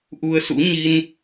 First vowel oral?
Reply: yes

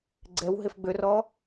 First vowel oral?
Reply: yes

